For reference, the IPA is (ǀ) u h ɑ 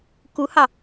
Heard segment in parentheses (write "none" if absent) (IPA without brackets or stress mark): k